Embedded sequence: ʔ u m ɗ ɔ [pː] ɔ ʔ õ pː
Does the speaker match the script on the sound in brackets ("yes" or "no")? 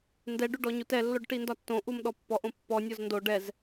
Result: yes